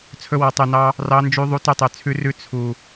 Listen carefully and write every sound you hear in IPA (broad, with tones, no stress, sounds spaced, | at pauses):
t͡sʰ ɵ˧ w ɔ˨ tˤ ʉ˨ n ɑ˧ | r ɑ˧ n d͡ʒ y˧ ðˤ u˧ t ʉ˧ tˤ ø˨ t͡sʰ ʉ˧ r ʉ˧ t͡sʰ u˨